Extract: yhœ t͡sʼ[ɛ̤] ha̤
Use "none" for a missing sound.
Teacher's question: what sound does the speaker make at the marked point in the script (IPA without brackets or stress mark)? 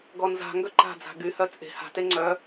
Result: e̤